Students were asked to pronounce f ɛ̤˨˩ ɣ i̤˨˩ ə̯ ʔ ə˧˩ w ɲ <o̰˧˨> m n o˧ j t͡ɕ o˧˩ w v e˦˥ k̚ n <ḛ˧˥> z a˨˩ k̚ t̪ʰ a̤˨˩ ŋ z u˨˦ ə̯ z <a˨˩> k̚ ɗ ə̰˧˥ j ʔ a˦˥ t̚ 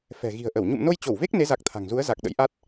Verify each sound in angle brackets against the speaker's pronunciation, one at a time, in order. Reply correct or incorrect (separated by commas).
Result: incorrect, incorrect, correct